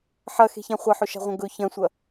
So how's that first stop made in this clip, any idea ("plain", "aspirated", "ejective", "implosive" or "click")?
plain